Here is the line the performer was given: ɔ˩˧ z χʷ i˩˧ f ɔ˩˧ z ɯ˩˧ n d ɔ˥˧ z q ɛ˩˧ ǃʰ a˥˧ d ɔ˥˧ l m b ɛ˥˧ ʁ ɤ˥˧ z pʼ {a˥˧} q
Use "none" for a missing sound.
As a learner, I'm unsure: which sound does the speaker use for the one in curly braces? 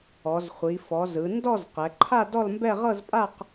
a˥˧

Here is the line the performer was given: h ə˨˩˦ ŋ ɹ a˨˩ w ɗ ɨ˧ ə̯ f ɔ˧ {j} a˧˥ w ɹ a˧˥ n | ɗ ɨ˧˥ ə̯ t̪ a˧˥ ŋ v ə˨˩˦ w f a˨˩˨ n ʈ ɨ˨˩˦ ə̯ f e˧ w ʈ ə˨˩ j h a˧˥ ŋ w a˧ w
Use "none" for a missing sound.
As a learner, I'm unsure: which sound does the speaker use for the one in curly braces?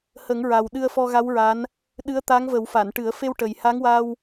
ɣ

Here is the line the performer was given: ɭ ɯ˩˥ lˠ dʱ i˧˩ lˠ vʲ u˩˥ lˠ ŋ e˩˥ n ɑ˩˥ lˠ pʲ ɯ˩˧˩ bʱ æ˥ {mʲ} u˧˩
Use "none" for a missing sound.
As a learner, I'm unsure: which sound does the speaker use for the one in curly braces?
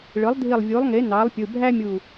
mʲ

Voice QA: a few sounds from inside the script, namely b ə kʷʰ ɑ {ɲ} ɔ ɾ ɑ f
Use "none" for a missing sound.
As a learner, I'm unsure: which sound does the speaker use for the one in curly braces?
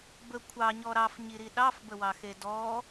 ɲ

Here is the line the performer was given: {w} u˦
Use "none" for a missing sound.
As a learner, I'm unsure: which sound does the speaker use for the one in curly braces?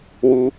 w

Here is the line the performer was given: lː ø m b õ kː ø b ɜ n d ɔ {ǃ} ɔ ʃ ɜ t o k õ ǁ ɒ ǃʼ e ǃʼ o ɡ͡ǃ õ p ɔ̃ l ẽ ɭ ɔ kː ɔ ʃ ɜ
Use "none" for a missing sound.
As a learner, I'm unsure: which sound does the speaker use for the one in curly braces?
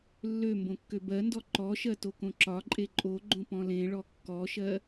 ǃ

